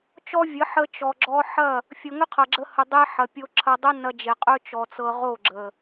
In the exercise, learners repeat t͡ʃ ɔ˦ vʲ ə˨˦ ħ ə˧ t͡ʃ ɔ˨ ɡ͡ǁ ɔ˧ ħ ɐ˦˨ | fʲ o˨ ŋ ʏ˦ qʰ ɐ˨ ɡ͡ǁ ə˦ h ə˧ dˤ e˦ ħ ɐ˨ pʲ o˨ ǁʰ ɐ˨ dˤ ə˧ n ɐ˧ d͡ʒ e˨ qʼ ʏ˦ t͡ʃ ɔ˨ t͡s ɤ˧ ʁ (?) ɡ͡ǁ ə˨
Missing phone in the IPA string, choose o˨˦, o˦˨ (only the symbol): o˦˨